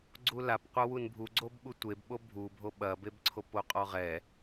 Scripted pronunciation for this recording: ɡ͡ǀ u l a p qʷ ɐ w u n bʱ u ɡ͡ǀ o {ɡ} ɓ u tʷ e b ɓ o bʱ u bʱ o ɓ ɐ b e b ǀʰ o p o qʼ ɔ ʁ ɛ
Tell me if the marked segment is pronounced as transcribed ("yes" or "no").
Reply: no